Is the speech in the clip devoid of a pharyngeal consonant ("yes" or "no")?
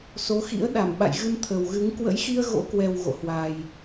yes